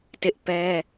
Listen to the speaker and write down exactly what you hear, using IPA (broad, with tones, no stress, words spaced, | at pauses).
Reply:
tɪ˦ʔpɛ˦